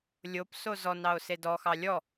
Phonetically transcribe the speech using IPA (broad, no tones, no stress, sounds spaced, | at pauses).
lʲ o p s o z ɔ n ɑ o̯ s e d ɔ x ɑ lʲ ɔ